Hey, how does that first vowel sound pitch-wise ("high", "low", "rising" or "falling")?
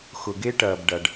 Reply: low